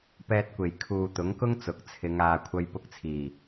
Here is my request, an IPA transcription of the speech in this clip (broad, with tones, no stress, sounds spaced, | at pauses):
p ɛː˧ t̚ kʷ e˨˩ j kʰ uː˨ t̪ ʊ˨˥ ŋ k ʊ˥ ŋ t͡s ʊ˨˥ k̚ t͡sʰ ɪ˨˧ ŋ aː˨ kʷʰ ɐ˧ j p ʊ˧ k̚ t͡sʰ iː˨˩